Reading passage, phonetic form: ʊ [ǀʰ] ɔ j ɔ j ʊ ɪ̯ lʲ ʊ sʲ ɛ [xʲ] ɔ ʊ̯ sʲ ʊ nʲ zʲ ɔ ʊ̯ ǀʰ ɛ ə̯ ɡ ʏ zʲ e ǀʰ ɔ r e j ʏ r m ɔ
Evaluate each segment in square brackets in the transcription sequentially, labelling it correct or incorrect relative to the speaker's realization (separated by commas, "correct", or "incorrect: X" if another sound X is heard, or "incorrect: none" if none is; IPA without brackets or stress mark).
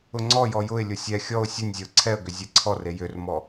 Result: incorrect: ŋ͡ǀ, correct